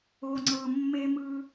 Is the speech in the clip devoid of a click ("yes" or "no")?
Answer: no